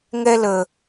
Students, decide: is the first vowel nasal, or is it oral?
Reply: oral